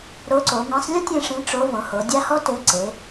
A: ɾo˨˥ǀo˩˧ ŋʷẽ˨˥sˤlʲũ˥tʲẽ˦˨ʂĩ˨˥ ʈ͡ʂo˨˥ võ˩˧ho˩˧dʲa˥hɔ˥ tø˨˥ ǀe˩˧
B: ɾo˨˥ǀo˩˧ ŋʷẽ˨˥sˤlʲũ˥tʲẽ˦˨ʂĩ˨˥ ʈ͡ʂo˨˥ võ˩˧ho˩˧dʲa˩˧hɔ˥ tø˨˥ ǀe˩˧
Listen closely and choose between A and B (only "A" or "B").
A